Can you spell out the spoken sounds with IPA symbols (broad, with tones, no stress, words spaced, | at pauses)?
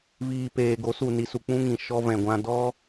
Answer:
viː˨ peː˨ ɡo˨˦su˨ ni˨su˨k͡pũ˧ ŋĩ˨ ʃɔ˧vɛ̃˨ɡʷã˧ dɔ˦